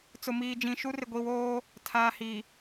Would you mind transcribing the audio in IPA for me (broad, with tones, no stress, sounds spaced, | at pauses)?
t͡s ʊ˨ m iː˨ d͡ʒ ĩ˨ ʃ u˦ r ɪ˨ ɡʷ i˨ w oː˦ | tʰ aː˨ h i˨